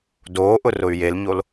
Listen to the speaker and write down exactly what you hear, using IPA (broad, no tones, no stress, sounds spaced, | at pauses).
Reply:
d oː ʔ ʊ r ʊ y̯ j e l ɲ o l